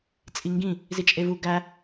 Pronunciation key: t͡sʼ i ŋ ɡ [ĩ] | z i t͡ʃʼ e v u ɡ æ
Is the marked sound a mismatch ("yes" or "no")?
no